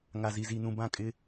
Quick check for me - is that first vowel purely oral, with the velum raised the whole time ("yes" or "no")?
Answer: yes